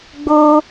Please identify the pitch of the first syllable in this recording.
high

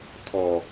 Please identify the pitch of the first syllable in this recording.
low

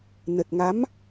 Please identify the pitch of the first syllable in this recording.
low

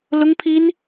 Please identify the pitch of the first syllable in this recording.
high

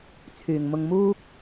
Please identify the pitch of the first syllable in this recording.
low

